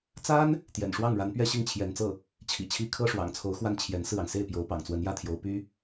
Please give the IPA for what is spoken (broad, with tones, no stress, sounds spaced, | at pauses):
t͡s a˥ n | t̪ j ɛ̰˨˩ n ʂ w ɑ˥˩ ŋ ɻ a˧˥ n p ɥ ɛ˥˧ ɕ i˥˩ ŋ t͡ɕʰ j ɛ˧˥ n t͡s ɤ˥˩ | t͡ɕʰ ḭ˨˩ t͡ɕʰ i˧˥ kʰ ɤ˥ ʂ w ɑ̰˨˩ ŋ t͡sʰ o˧˥ ʊ̯ x w a˥˩ n t͡ɕʰ j ɛ˧˥ n s ɹ̩˥˩ ɑ˩ ŋ s e˥˩ ɪ̯ p j o˧˥ ʊ̯ p ɑ̰˨˩ ŋ t͡s w ə˧˥ n j ä˥ t̪ʰ j o˧˥ ʊ̯ p y˥